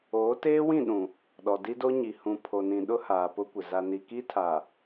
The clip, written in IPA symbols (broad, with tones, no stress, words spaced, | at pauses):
oː˨˦teː˦wĩ˦˨ɗũ˨ | ɗɔ˨ di˦do˦ ɲi˨hũ˨ pʰo˨nĩ˨ɗʊ˦ haː˨pʊ˦kʷɪ˨ za˨ni˨ki˦tʰa˨